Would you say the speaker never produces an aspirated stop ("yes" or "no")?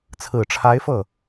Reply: no